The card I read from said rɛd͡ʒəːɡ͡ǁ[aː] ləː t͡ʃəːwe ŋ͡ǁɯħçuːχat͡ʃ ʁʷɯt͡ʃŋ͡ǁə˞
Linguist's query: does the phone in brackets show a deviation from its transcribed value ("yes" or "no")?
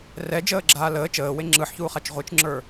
no